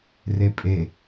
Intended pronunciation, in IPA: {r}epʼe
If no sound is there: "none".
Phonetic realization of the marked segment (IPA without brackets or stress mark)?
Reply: r